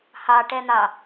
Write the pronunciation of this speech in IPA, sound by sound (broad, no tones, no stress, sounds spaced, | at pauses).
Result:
h ɑ ʈ ɛ n̪ ɑ